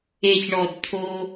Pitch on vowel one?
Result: low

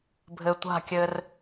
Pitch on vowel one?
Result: low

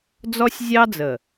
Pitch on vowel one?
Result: high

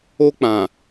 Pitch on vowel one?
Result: high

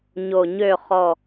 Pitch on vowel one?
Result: low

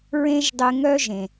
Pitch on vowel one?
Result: high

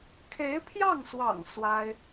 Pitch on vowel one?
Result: rising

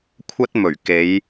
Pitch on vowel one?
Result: high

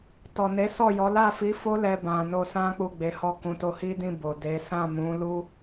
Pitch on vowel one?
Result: low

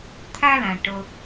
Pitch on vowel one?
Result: high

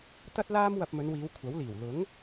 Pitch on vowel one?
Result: high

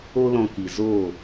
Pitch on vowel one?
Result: high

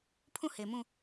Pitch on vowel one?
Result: falling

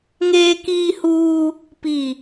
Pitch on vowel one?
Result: high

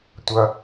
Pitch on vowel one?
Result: low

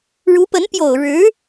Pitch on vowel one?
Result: rising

